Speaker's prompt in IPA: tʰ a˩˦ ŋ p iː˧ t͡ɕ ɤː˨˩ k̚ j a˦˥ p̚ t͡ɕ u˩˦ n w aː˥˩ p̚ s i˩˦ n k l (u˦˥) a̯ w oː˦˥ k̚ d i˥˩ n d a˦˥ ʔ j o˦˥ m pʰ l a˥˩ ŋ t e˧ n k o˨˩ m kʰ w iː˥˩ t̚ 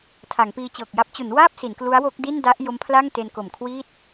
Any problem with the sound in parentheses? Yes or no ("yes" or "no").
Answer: no